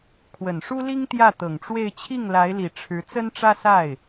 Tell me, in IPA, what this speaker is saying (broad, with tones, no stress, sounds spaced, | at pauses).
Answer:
kʰ w ə˨˩ n ʂ u˥ l i˥ ŋ t̪ j ä˥˩ t̪ ɤ˨˩ ŋ ʈ͡ʂ w e˥˧ ɪ̯ t͡ɕʰ i˥˩ ŋ l a˧˥ ɪ̯ l i˨˩ ʈ͡ʂʰ ɻ̩˧˥ t͡s ə˥ n ʈ͡ʂ ä˥ s a˥˩ ɪ̯